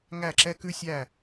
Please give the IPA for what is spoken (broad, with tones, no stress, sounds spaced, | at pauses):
ŋ æ˥˨ ǁ ɛ˥ k ʉ˥ sʲ æ˥˨